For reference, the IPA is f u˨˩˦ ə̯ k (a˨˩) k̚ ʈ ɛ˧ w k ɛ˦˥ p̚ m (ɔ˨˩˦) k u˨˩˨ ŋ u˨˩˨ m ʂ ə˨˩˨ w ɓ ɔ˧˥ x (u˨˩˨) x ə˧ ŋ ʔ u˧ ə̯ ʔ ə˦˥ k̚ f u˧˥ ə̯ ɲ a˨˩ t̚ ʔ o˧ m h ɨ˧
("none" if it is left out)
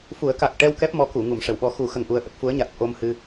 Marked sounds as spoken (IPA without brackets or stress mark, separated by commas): a˨˩, ɔ˧˥, u˨˩˦